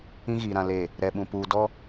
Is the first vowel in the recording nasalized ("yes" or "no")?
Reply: yes